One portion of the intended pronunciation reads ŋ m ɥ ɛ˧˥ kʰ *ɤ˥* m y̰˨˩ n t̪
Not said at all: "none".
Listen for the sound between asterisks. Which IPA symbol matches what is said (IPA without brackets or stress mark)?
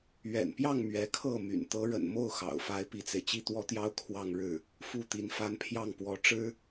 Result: ɤ˥˩